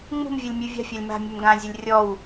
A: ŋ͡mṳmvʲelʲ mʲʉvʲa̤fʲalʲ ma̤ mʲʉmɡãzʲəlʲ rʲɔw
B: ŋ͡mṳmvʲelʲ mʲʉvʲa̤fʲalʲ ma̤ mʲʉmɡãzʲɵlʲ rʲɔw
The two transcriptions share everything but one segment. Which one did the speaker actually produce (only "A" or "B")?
B